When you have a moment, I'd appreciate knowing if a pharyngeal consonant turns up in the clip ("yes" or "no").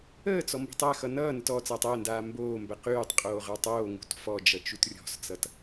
no